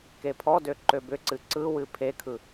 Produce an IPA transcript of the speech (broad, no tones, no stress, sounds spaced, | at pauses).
k e pʰ ɔ d ø ǃ ø b ʏ ǀ ɨ ǀ ɯ w ɨ pʰ e kʰ ɯ